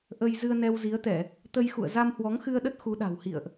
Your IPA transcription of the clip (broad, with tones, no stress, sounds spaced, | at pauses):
ʔ ə˧ j z ɨ˧ ə̯ n ɛ˧ w z i˨˦ ə̯ t̪ ɛ˧˩˨ | t̪ ə˧ j x ṵ˧˨ ə̯ z a˧ m h w ɔ˨˦ ŋ x ɨ˧ ə̯ ɗ ə˦˥ t̚ x u˨˦ ɗ a̤˨˩ w h ḭ˧˨ ə̯ ʔ